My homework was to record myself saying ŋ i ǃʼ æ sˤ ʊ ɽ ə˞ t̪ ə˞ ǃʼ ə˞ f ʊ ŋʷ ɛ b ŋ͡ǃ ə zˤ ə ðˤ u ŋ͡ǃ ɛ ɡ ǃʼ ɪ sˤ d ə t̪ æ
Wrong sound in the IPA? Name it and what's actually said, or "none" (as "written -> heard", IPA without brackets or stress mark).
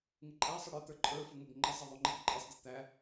none